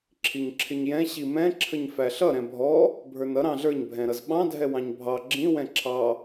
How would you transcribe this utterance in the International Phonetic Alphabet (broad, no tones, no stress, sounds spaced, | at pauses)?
ǁʰ i ɲ ǁʰ ɪ ɲ j ɛ̃ ɕ i m ɛ̃ ǁʰ ə ɲ f æ ɬ ʌ ɾ ɛ̃ bʱ ɔ | bʱ ə˞ n ʌ ɾ ɑ̃ ɮ ə˞ ɲ bʱ ɛ̃ ɾ ʌ z ɓ ɑ̃ dʱ ɛ w ɑ̃ ɲ bʱ ɑ ɡ͡ǁ ĩ w ɛ̃ ǁʰ ɑ